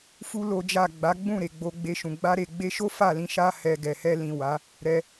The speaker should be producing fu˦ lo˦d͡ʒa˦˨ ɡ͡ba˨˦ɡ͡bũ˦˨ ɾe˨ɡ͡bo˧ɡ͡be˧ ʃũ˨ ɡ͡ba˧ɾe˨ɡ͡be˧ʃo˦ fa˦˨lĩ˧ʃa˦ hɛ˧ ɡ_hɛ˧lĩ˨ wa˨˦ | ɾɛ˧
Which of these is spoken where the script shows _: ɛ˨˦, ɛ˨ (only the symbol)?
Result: ɛ˨